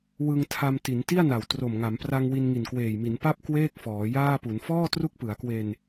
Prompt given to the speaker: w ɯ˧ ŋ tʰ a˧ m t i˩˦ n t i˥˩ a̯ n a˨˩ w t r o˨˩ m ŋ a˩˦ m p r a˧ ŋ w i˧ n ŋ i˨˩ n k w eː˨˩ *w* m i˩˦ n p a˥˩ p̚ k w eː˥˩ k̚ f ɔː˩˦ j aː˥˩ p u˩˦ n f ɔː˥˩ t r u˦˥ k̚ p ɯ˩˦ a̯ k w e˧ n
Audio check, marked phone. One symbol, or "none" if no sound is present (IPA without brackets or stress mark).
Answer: j